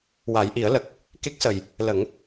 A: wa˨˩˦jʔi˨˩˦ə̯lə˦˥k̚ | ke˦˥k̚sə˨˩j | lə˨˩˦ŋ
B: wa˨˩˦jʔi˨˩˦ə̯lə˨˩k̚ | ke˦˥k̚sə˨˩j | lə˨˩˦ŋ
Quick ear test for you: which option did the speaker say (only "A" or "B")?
B